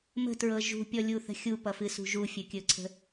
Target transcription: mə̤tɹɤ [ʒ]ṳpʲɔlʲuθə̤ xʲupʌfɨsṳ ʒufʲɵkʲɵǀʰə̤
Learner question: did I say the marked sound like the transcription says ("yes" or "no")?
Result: yes